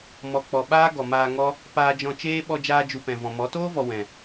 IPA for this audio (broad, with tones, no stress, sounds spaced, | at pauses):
m ɔ˨ k͡p ɔ˨ ɓ aː˦ ɡ ɔ˨ m aː˧ ŋ ɔ˦ | p aː˧ d͡ʒ ɔ̃˧ t͡ʃ eː˦ ɓ ɔ˧ d͡ʒ aː˧ d͡ʒ u˨ p ɛ̃˨ v ɔ̃˨ m ɔ˨˦ t oː˦ v ɔ˨ w ɛ̃˨